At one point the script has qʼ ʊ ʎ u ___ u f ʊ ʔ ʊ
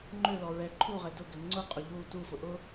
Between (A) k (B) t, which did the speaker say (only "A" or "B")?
B